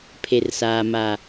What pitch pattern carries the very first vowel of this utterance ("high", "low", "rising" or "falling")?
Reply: low